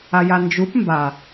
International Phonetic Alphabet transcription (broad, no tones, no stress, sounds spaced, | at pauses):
a j a n d͡ʒ u p m b a